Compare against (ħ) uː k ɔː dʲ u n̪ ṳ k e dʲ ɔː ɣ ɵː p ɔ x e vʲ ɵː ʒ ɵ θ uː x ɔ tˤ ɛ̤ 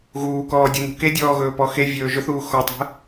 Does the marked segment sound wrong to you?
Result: yes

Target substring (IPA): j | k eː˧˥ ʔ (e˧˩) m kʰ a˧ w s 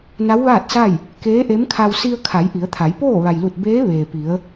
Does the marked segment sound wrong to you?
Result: yes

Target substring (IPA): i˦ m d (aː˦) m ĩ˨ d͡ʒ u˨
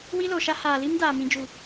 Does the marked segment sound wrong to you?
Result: yes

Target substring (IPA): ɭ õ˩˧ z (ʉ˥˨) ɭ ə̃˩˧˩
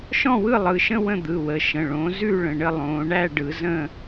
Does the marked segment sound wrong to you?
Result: no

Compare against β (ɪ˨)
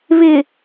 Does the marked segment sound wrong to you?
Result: no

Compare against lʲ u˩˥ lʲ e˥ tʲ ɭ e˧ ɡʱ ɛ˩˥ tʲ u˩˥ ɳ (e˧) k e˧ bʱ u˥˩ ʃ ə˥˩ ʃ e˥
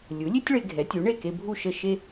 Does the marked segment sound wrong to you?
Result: yes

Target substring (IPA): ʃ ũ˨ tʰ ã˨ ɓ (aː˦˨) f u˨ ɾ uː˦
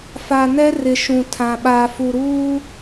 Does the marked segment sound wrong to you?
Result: yes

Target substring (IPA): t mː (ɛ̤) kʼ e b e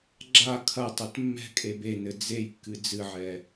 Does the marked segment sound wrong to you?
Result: no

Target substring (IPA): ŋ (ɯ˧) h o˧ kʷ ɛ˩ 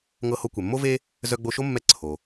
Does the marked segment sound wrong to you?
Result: yes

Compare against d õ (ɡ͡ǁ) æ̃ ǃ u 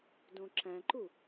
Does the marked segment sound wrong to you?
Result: yes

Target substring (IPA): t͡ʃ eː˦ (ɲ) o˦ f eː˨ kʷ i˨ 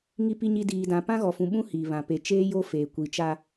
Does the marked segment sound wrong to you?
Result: yes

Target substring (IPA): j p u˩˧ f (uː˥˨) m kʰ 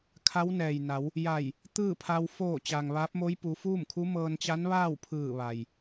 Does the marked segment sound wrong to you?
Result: no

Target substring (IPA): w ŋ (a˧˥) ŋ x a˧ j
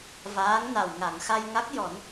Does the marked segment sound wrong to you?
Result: yes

